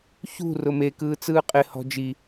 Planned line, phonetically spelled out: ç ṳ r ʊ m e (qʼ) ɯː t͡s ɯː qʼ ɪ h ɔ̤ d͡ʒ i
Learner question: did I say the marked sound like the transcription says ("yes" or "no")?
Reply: no